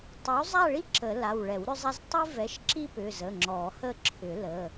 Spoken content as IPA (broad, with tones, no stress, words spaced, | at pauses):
tˤʏ˨˥w zˤa˥˧ɭi˥ ǁə˨˩˦la˩˧˩w ɭɛ˨˩˦wɾʏ˥zˤa˥z tˤi˥vɛ˨˥ʃǁi˥ pʏ˩˧˩zə˩˧˩ ŋ͡ǁɔ˨˩˦hə˥˧ ǁʰʏ˨˩˦lə˩˧˩